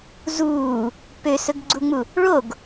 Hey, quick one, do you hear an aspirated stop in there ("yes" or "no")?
no